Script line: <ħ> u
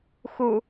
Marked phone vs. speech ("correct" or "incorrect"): incorrect